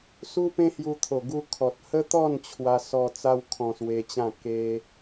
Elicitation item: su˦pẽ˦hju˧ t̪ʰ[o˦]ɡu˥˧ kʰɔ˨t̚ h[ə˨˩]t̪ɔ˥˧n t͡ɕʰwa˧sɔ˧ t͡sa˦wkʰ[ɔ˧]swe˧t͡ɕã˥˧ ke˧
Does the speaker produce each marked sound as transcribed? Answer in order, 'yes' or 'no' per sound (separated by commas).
no, no, no